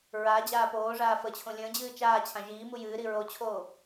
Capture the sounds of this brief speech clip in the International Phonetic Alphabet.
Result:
ɹa d͡ʑaːpoːʐaː fət͡ɕʰõ lʲə̃ːd͡ʑɨː t͡ʃaːt͡ɕʰã ʒiːmu jɨːɾi ɹot͡ɕʰoː

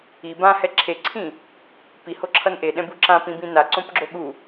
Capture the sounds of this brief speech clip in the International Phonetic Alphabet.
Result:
i bãhɛ ǁʰeǀʰĩ | pihoǁʰʌn ʔeɗɛ̃bu ǁãpĩbĩ naǀõpɡ͡ǁo ɠu

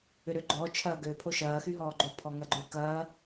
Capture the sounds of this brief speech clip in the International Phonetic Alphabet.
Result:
ʏɾøɡ͡ǃɔ t͡ʃʰɐːɡø pʰoʃɐː xyɦɔːɡ͡ǃo pʰɔŋɐɡ͡ǃʏ kɐː

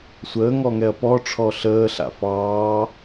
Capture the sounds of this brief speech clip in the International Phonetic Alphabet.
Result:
sʷəːŋɔŋɛɐ̯ pɔʈ͡ʂʰɔ ɬəːɬa̰ fɑː

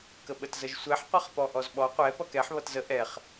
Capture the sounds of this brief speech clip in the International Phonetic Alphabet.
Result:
kəɓətzəʒsʷɛħ qʷʌχpɔʔɔzɓɔ qʷɛ pʌkɛħ βʌtzə ʔɛχ

